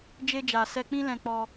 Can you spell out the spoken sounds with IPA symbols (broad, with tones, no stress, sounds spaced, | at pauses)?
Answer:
d͡ʒ e˧ d͡ʒ a˨ s ɛ˧ k͡p ĩ˦ l ɛ̃˧ k͡p ɔ˧